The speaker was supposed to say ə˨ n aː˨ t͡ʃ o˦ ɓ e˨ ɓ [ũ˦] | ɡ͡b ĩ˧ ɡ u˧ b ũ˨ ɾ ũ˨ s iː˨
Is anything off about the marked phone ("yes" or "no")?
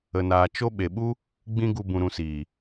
yes